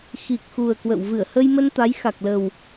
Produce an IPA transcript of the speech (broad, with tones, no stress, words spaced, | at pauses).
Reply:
xi˨˩k̚xu˨˩ə̯ kwə̰˧˨w vɨ˧˩ə̯ hə˧jmə˧n t̪a˨˦jxa˨˩k̚lə˨˩w